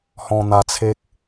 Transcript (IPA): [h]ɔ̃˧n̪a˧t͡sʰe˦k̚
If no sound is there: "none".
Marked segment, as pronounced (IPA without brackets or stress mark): h